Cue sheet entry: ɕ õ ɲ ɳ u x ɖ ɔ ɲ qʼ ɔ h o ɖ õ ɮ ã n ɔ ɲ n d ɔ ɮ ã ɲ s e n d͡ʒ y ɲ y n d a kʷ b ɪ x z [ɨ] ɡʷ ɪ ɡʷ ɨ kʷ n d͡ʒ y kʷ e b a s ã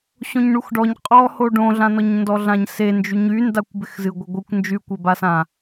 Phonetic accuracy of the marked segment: correct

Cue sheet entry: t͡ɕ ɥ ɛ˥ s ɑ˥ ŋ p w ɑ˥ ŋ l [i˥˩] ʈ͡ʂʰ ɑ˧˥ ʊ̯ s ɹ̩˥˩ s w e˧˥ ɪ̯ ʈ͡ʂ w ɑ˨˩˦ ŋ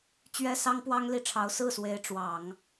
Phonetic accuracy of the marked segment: correct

